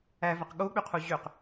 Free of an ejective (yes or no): yes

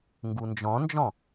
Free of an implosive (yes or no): yes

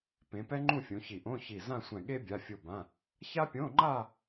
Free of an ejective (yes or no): yes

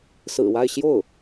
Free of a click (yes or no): yes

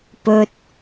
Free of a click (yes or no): yes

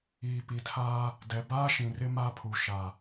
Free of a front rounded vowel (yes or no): yes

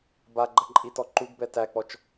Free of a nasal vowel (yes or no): yes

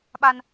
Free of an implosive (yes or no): no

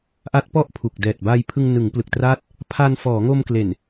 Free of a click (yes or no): yes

